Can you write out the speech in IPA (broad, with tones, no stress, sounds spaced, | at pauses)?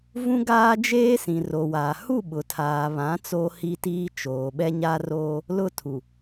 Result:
v ũ˦ ɡ aː˦ d͡ʒ eː˦ s ĩ˨ r o˨ w aː˨ h u˦˨ ɓ ʊ˨ tʰ aː˨ β ã˨˦ t͡s oː˦ h i˦ t iː˦ t͡ʃ oː˨ ɓ ɛ˦ ɲ a˦ r oː˦ | l ʊ˦ tʰ u˨